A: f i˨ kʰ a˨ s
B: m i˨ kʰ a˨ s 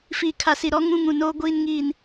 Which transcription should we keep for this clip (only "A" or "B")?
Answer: A